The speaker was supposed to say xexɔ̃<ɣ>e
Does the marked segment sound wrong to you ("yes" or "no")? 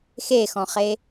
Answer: yes